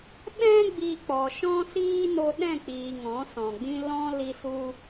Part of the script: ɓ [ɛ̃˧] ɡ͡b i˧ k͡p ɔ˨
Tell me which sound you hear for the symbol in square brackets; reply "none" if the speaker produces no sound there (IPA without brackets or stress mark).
ɛ̃˦